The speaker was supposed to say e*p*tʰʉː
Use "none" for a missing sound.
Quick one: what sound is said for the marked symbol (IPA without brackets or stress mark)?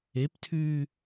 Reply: p